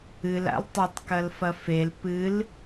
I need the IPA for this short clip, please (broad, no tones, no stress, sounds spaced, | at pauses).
ɨ l a̰ l tˤ ɐ tˤ k ɐ l f ɐ f e l p ɨ l